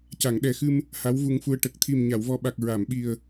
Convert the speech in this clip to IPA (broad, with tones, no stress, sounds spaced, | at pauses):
c a˨˩˨ ŋ ɗ ɛ˨˩ x ɨ˧ m | h a˧˥ w v u˧ ŋ f u˧ ə̯ ʈ ə˨˩ k̚ t̪ʰ i˨˩ m ɲ a˨˩˨ w v ɔ˨˩ ɓ a˨˩ k̚ ɹ a˨˩˨ m ɓ i˨˩ ə̯